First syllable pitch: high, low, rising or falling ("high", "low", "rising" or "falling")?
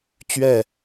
falling